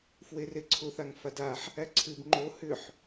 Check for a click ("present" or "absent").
present